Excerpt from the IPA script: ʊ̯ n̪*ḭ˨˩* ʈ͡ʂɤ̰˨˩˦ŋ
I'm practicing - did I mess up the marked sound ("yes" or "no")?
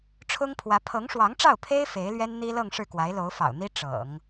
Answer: yes